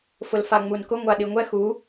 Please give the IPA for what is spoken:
fʊlfaŋ͡munkʊ ŋʷaɗiŋʷɛ xu

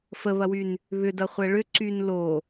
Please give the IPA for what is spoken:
fəβɐwyn | βʏdɐχʷɛ ɭʏǀyn lo

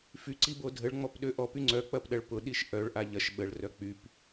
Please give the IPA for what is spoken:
fyǀibo dʱəɭŋ͡mɔpɗø ʔɔpy ŋ͡ǀœk͡pɐpɗɐɭ pʊɗiʃ ʔœɭʔa ʎɐʃ ɓəɭrœ k͡pyp

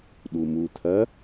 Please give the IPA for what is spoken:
ɗumut̪ʰɐ

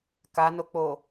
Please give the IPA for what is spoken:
kanok͡po

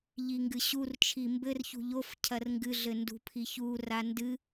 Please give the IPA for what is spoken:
ʎiŋɡɨɕurt͡ʃʰi mbɘrçṳ ʎof cʰɐrŋɡɨɮɘ ndṳpʰiçu randɨ

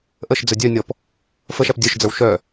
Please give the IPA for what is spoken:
ʔəʃd͡zœ dʲœnʲɔp | fəʃæp dʲœʃd͡zə˞w ʃœ

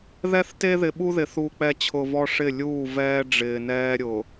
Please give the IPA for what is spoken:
ðɛ˦θte˦ ðɪ˨ɓu˦ðɪ˨ θu˨k͡pɛ˨t͡ɕʰʊ˨ vɔ˦ʂɪ˦˨ lʲuː˦˨vɛː˦ɖ͡ʐɪː˨ nɛː˦ɾʲʊ˨

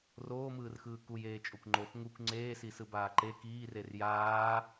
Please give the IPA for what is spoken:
roːmɯːrxɯː kujeː t͡ʃʼokʷŋ͡ǃox ŋukʷ ŋ͡ǀeːsi sɯbaːǃe kiːrer jaː

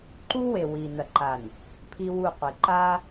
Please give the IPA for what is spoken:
ǃu˦we˨wi˨ nɐ˨ǃa˨n | pʰi˦wu˦˨qʷi˨ ǃa˦

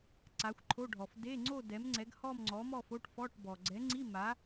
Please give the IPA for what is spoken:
ǀa˨˥xʷǃʰo˧˥˧ɖʱɔ˨f de˧˥˧ŋ͡ǀo˥˧ dɛ˨˥mŋ͡ǀɛ˨˥ɡhɔ˥˧m ŋ͡ǀɔ˨˥mɔ˥˧fo˧˥˧ʈ fɔ˧˥˧ʈbɔ˨ ɡ͡ǀɛ˨˥ŋ͡ǀi˧˥˧ma˨˥

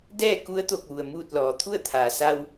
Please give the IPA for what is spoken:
dɛː˥˨ ku˧˥ə̯t̪o˧˩k̚ ʋu˩ə̯muː˥˨t̚lɔː˩˧ t̪ʰu˥˨ə̯t̪ʰaː˩sa˧w

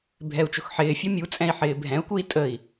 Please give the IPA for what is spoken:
bʱɛu̯t͡ʃʊxħɪːfʲɔ mʲu t͡sʼɛ̃i̯ħɪːbʱɛ̃u̯kui̯ tʼəi̯

